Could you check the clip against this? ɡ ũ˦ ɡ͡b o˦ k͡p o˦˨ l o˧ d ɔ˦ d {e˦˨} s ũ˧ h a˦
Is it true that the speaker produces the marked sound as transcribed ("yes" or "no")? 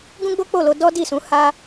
no